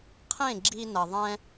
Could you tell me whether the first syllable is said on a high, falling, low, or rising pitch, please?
falling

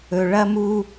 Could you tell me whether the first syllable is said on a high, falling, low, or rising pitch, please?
low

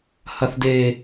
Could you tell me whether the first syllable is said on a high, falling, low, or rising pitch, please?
low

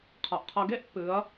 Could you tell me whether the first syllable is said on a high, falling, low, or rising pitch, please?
low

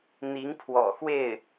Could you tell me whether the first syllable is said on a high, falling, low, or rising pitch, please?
rising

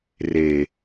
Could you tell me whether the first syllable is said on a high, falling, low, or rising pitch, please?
low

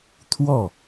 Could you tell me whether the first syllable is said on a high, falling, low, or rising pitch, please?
falling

